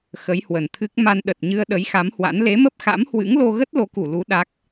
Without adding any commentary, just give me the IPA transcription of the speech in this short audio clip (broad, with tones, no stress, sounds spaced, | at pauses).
x ə˨˦ j h w ə˨˩ n t̪ʰ ɨ˦˥ k̚ m a˧ n ɗ ə˨˩ t̚ ɲ ɨ˧ ə̯ ɗ ə˨˦ j x a˨˦ m h w a̰˧˥ n l e˨˦ m ə˦˥ p̚ x a̰˧˥ m h w ɨ̰˧˥ ŋ l o˧ ɣ ə˦˥ t̚ l o˨˦ k u˧˩ l u˨˦ ɗ a˦˥ k̚